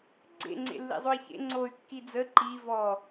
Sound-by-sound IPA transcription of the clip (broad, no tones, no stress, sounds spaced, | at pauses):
ɡ͡ǀ ḛ ŋ͡ǀ ḛ lː ḭ zˤ o i̯ ç ḛ ŋ͡ǀ o y̯ kː i d͡z ə ǃ i v ɔ